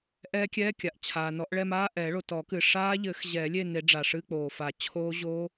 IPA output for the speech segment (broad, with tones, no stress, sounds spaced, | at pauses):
ʔ ɛː˦˥ kʲ ɛː˧˥˧ kʲ a˩ ʔ t͡ɕʰ aː˩ n ɔ˨˩˦ ʔ ɭ ɛ˥˧ m aː˧˥˧ ʔ ɛ˨˩˦ ɭ o˩ t ɔ˨˩˦ k ɨ˩ ʂ aː˦˥ ʎ ɘ˨˩˦ x ʑ ɛː˨˩˦ lʲ e˥˧ n e˨˩˦ ɖ͡ʐ a˩ ʂ ɨ˧˥˧ k͡p oː˩ f a˨˩˦ t͡ɕʰ oː˦˥ ʑ o˦˥